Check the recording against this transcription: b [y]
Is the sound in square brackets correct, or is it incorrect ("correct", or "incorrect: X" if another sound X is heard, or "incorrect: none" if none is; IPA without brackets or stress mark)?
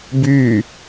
correct